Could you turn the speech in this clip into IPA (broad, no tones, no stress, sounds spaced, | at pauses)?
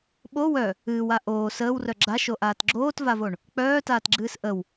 ɓ o w œ | ɨː w a ʔ oː s əː w r œ ɡ͡ǁ a ʃ o ʔ aː t ɡ͡ǁ oː t v a v o ɳ | k͡p œː t aː t ɡ͡ǁ ɨː s ʔ ə w